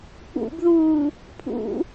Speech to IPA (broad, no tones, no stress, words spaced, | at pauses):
k͡pṵbðuː | pʰṵ